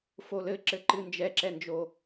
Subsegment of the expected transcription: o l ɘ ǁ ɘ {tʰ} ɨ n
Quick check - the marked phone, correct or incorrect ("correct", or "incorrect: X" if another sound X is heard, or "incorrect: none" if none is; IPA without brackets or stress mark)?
incorrect: ǃ